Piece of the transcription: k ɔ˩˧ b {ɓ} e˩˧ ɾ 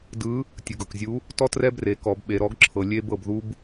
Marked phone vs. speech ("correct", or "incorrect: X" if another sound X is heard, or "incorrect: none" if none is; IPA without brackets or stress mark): correct